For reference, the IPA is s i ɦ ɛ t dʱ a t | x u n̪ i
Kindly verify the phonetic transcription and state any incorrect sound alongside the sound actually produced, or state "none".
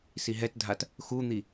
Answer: none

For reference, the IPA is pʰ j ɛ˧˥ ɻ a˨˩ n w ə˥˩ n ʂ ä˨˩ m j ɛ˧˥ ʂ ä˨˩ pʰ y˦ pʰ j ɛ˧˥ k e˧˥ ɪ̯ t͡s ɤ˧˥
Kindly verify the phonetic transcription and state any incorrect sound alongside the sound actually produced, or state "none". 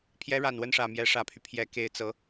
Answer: none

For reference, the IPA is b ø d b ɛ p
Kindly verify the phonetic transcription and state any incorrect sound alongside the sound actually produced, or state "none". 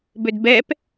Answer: none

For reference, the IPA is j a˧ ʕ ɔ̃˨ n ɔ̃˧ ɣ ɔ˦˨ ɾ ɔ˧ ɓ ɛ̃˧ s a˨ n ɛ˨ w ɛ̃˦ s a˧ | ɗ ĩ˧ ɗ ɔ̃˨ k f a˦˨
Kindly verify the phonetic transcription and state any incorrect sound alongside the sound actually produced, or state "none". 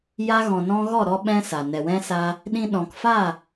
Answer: ʕ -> ɣ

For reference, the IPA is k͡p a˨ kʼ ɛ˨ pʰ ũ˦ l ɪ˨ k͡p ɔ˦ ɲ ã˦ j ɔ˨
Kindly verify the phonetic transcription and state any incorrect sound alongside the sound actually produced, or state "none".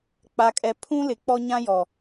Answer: none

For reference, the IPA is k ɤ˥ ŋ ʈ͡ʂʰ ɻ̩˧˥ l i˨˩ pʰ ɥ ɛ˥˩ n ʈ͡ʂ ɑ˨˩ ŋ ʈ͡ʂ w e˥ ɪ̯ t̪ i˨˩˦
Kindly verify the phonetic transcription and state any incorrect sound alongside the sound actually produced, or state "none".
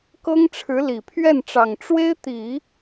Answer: none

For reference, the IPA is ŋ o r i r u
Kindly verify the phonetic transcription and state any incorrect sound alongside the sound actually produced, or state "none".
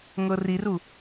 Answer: o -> ɤ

